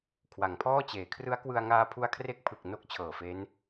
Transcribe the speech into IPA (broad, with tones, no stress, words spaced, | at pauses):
kʰwa˩˦ŋpʰɔː˥˩t͡ɕeː˩˦ kʰrɯ˦˥a̯kwɯ˧a̯ ŋaː˧pʰu˧a̯kʰre˦˥k̚pʰɯ˨˩k̚ no˦˥k̚ t͡ɕʰɤː˨˩fe˦˥n